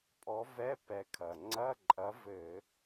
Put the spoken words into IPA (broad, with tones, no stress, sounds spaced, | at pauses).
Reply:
pʼ ɔ˨˥ v ɛ˧˥˧ p ɛ˧ kʰ ɐ˨˩ ŋ͡ǀ ɐ˧˥˧ ǃʼ ɐ˨˥ v ɘ˧˩˧